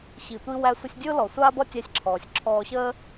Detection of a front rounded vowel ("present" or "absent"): absent